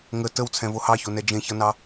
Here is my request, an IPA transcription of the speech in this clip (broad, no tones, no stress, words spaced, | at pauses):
ŋə təwt͡sʰɛ̃vo hɑçonɛ d͡ʒẽçʌnɑ